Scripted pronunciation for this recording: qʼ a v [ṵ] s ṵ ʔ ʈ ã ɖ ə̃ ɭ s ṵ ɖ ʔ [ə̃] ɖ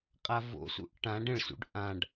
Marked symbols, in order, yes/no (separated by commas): no, no